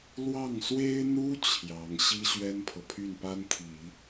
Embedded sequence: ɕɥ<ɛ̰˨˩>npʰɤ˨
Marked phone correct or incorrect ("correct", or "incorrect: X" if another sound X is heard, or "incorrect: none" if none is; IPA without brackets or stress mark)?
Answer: incorrect: ɛ˥